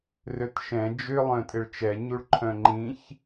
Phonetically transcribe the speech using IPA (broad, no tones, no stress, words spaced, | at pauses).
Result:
røtʃɛ̃ d͡ʒʏ lˠœ̃tʼɪɭt͡ʃɛɲuɭ ǃʰœ̃ŋ͡ǃĩç